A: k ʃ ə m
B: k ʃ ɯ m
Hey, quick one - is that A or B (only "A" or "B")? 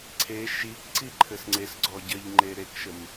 A